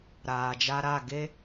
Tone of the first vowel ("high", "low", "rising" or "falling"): low